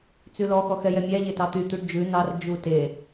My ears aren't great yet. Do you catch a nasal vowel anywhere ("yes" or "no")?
no